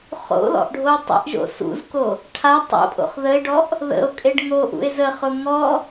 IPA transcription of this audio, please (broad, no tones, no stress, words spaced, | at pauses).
χo̰lɔ̰ʔɖʱo tˤə̰ʔʒo̰ sṵzko | ʈʰa tˤo̰pʼo̰χ ðəe̯ɖɔʔ | ðə̰o̯kʼeɖ ŋoʔṵe̯ zəχʊ ŋɔ